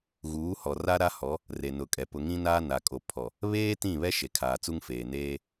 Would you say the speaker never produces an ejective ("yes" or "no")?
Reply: no